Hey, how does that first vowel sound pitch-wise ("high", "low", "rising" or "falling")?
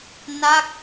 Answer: falling